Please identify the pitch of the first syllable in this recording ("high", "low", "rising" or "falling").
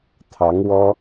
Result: rising